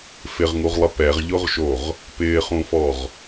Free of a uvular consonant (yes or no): no